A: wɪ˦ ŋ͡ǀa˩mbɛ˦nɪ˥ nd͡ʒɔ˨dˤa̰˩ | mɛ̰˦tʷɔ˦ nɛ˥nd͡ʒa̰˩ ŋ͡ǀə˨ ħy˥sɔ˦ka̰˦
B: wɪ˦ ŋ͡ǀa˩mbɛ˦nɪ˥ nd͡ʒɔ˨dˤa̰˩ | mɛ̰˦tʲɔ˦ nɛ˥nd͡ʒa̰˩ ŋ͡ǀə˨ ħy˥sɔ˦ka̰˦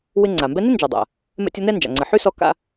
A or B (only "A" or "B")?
B